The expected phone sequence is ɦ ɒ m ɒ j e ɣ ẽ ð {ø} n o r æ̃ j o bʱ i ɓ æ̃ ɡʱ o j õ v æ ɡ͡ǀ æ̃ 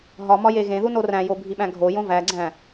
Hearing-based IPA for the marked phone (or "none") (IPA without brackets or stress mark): u